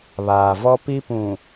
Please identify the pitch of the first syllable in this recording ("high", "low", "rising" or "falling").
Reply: low